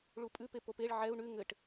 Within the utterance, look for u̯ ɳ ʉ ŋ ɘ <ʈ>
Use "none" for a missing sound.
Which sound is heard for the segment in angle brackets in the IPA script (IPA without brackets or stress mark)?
ʈ